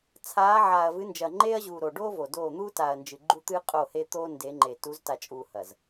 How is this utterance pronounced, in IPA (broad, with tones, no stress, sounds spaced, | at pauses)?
t͡sʰ aː˨˦ ʕ aː˨ ɐ̯ v ɨ˨˦ n d͡ʒ ɐː˨ ŋ͡ǃ eː˦ ɐ̯ ʑ uː˨ ɾ o˨ ɖ oː˦ v o˨ d oː˦˨ n̪ uː˦ t a˨ ɐ̯ n d͡ʒ ɨ˨ ɡ͡ǃ u˦ t̪ ɨː˦ qʼ o˦˨ h e˦ t̪ oː˦ n d e˨˦ ŋ͡ǃ e˨ t u˨˦ z t a˨ t͡ʃʼ uː˨ h ɐ˨ z